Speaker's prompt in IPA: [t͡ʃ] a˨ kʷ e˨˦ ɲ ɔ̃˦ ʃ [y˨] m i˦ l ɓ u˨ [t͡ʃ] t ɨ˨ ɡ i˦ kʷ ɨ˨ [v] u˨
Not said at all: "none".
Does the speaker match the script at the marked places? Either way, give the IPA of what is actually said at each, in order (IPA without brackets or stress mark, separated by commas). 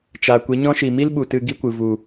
t͡ʃ, i˨, none, v